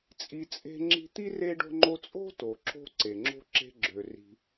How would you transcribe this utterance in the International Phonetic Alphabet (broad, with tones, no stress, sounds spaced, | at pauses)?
t͡sʼ i˧ t͡sʼ e̤˥ ŋ͡ǁ i̤˥ t̪ i˥ r e˥ ɖ o̤˥ ŋ͡ǃ o˥ t͡sʼ o̤˥ t o˩ ǁ o̤˧ ǀ e˩ ŋ͡ǁ o̤˥ ǁ e̤˧ ɡ͡ǁ ø˩ r i̤˩